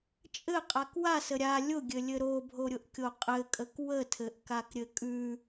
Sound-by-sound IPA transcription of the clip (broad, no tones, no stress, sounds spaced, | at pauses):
t͡ʃʼ ɘ qʼ a k w a s ə ɾʲ a lʲ ʊ ɡʲ ɘ lʲ ɘ ɾ o bʱ o ɾʲ ʊ ʔ kʲ o qʼ ɘ kʼ ə k w ə tʰ ɘ ʔ k a k ɾʲ ɘ kʼ ʉ